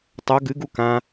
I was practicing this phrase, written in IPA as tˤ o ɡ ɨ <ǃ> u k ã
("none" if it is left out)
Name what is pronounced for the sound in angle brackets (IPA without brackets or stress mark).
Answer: ɡ